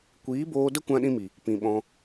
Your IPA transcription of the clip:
kʷ iː˨˦ b oː˧ d ə˦ kʷ ã˦ ɗ ĩ˦ m i˨ | p ĩ˨ ɓ ɔ̃˧

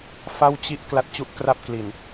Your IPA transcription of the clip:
f a˥˩ w t͡ɕ i˥˩ ʔ k l a˦˥ t̚ t͡ɕ u˥˩ ʔ k r a˥˩ p̚ k l i˨˩ n

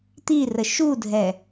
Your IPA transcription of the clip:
t̪ i r ə ʃ u dʱ ɛ

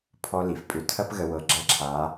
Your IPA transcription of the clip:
pʰ ɔ˦ l i˨ f pʼ ʏ˨ tʰ ɐ˦ p ɣ ə˨ w ɤ˨ ɡ͡ǁ ɐ˦ ǁʰ a˨˦

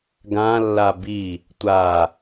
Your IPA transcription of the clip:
ɡ ã lː a b i | tʷ a

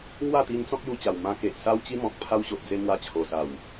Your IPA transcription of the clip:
ŋ w a˥˧ t̪ i˧ n t͡s ɔ̃˦ k̚ j u˧ t͡ɕ a˨˩ w m ã˧ k e˨ ʔ s a˦ w t͡ɕ i˦ m ɔ̃˨ k̚ pʰ a˧ w ɕ o˨ ʔ d͡z e˧ m w a˧ t͡ɕʰ o˨˩ s a˨˩ w

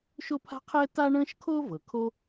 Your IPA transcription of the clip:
ʃ o˥ pʰ a̤˥ qʰ ɛː˥ t a˥ ɳ ə̃ː˥ ʃ kʰ o˥ v ɤ˩ kʰ o˥

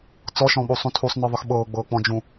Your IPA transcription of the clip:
t͡s ɔ ʃ ɔ̃ ɓ uː sˤ ũ tʰ u sˤ n ɤ ðˤ ɨ x ɓ ɤː ɡ͡b ɤː k͡p ɔ̃ d͡ʒ ũ

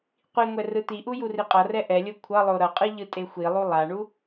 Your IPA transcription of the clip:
qʷ i ŋʷ ɛ r ɯ t̪ i ʔ u j u r i qʼ ʌ r ɛ ʔ ɛ lʲ o kʷʰ ʌ lˠ o ɾ ʌ qʼ ɯ ʎ ɯ tʼ e xʷ i lˠ u lˠ a ɳ u

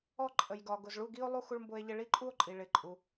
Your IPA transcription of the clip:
ɔ˥˧ ǃʼ ə˨ j ɡ ɒ˨ ɡ ʊ˨ z ɭ u˥˧ ɡ i˥ o̯ lˠ u˥ x u˥ ɭ m b ʊ˥ e̯ ʎ ɪ˥ ɭ i˥ ǃʼ u˥ o̯ ǃʼ i˨ ɭ ɪ˨ ǃʼ u˨

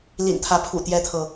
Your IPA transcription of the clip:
l ḭ˨˩ n t̪ʰ ä˨˦ pʰ ṵ˨˩ t̪ j ɛ˦ t̪ʰ ɤ˨

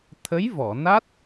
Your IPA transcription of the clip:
t̪ʰ ə˧˥ j v ɔ˨˩˨ n a˦˥ t̚

